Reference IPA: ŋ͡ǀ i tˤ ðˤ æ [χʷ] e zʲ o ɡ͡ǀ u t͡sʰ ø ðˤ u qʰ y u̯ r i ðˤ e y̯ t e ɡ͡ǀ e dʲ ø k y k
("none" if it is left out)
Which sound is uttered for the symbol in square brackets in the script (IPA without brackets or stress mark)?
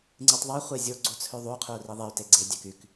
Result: χʷ